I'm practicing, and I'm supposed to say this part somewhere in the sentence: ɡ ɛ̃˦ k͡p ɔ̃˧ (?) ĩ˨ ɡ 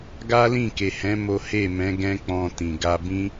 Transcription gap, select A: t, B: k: A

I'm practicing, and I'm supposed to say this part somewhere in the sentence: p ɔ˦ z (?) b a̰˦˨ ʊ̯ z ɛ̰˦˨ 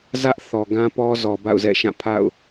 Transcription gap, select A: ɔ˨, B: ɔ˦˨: A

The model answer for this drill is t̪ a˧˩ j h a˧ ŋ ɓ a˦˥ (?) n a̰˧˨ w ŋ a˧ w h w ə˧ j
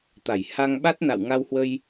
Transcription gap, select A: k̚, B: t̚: B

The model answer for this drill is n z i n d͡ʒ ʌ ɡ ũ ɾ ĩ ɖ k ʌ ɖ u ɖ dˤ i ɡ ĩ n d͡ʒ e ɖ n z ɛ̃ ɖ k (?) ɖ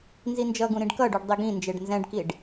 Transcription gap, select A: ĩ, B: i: B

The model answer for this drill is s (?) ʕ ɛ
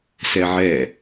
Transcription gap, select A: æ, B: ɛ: B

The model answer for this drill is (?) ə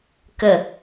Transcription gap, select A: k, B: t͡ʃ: A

